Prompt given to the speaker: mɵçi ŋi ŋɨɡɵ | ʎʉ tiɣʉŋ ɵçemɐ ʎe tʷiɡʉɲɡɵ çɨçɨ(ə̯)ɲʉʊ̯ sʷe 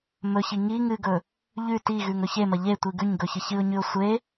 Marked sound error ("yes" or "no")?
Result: yes